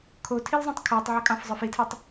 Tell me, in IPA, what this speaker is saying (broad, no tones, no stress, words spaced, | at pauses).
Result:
kʰotʰilzˤõtˤ kʰoːtˤʕɑkʼɑ̃fzˤə˞f itʰɨtˤ